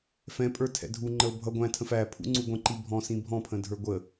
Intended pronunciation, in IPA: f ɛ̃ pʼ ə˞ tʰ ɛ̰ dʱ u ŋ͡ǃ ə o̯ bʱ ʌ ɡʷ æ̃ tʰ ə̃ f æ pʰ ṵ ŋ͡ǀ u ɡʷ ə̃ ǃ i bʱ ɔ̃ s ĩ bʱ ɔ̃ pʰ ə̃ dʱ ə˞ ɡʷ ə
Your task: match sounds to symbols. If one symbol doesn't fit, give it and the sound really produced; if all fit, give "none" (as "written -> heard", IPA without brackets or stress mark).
none